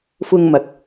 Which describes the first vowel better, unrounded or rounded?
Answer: rounded